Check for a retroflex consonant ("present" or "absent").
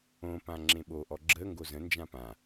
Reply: absent